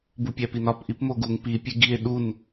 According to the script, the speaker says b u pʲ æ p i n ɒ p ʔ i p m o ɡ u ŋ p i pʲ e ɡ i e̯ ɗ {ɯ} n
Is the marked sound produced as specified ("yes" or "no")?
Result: no